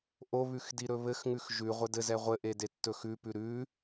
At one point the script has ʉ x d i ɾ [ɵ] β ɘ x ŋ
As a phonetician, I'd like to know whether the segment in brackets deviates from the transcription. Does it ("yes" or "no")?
no